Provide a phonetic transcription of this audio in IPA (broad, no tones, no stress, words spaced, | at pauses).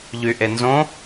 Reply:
ʎyʔenzõ